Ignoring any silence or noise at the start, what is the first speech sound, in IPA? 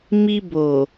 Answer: m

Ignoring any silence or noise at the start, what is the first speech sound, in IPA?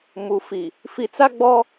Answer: m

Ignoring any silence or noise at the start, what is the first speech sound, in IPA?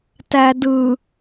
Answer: t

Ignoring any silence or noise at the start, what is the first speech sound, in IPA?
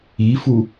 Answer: i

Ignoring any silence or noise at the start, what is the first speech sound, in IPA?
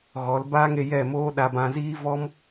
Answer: ɣ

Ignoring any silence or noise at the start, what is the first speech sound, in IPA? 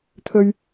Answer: t̪ʰ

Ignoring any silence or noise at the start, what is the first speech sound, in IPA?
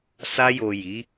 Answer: s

